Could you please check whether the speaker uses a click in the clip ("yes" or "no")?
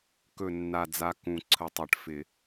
yes